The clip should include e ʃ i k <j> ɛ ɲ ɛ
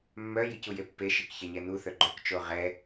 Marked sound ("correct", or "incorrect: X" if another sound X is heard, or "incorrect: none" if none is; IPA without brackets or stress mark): incorrect: ç